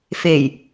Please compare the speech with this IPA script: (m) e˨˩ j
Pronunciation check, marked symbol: incorrect: f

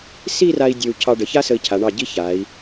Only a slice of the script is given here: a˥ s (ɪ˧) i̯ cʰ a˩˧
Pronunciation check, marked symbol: incorrect: ə˧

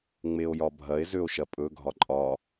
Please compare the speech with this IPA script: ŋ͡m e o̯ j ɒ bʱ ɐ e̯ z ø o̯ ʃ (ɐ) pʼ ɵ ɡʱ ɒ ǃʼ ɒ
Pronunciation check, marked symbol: correct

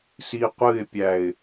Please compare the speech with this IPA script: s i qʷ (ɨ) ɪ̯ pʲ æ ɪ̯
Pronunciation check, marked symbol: correct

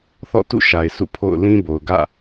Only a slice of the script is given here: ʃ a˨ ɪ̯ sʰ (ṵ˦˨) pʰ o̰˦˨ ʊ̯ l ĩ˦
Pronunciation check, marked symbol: correct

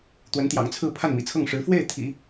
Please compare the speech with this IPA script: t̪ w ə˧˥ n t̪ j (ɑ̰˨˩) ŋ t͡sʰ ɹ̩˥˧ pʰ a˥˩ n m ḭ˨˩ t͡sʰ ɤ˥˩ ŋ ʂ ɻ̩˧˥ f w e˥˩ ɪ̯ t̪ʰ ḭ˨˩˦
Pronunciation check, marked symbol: correct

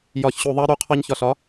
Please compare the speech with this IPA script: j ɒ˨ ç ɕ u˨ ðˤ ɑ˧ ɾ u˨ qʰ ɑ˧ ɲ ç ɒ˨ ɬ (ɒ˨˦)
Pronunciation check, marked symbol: correct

